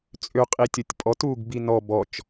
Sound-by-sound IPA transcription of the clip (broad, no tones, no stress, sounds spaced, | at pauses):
t͡sʼ ø qʼ i tʲ o tʲ pʼ ɔ t uː ɡ b i n ɔ b ɔ t͡ʃ